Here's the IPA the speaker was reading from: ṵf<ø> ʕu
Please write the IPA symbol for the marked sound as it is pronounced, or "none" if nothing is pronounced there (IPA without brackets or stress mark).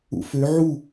ø